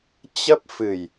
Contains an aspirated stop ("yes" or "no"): no